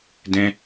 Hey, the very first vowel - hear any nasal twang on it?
yes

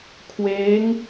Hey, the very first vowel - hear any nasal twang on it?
no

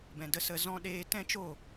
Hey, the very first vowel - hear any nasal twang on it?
yes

